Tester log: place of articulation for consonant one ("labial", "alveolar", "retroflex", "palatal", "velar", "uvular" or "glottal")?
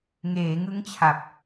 velar